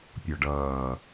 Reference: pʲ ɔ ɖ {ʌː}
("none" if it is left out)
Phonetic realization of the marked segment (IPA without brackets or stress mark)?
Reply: ʌː